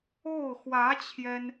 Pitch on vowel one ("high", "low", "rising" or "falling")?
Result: falling